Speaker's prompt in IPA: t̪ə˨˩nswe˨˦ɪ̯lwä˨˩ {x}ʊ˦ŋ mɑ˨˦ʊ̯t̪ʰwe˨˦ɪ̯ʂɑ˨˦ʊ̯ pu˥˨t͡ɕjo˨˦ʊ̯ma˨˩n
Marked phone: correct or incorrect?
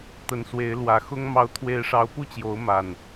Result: correct